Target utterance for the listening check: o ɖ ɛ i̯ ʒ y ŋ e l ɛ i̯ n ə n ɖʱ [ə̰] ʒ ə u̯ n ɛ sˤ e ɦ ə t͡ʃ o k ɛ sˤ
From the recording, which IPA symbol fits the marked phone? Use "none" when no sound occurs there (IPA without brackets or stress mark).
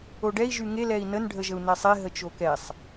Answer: ə